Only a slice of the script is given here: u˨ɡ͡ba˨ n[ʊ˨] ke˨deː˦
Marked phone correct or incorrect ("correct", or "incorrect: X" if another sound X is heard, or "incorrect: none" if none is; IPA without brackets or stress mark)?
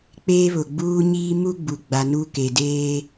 incorrect: u˨